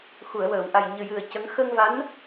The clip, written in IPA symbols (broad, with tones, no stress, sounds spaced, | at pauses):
x u˨˩˨ ə̯ w əː˨˩˨ w ʔ a˨˩ j ɲ ɨ˨˩ j ɨ˨˩ ə̯ c ə˧˥ ŋ x əː˧ ŋ v a˧˥ n